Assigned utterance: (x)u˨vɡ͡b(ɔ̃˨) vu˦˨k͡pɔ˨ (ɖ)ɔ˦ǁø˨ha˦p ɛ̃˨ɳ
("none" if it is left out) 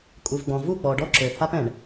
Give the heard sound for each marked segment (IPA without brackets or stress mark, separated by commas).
kʼ, ɔ̃˨, ɖ